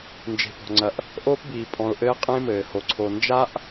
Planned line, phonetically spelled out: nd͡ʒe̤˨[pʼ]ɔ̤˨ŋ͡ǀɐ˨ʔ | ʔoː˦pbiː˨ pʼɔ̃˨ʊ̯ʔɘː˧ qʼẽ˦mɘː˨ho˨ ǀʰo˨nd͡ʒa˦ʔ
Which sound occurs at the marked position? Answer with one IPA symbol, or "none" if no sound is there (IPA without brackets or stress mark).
p